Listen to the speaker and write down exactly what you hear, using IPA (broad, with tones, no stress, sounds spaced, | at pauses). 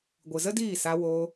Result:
ɡʷ ɨ˨ z ə˦ d iː˦˨ s a˧ w oː˧